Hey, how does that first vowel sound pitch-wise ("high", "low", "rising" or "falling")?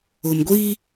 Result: low